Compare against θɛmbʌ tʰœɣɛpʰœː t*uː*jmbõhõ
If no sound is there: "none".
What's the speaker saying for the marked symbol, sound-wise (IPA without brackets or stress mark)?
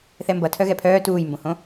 uː